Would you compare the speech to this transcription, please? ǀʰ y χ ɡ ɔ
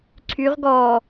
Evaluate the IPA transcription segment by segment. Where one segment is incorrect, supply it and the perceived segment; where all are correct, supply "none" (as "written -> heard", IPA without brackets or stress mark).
χ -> ʁ